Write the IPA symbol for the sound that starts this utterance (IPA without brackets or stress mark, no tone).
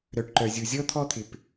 ɾ